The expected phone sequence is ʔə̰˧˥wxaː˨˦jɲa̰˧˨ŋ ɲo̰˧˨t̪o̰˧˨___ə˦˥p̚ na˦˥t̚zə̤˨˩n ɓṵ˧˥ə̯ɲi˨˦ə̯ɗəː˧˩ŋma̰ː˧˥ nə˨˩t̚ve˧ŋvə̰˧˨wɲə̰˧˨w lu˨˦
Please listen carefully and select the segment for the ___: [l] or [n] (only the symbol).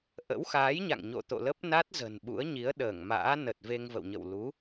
l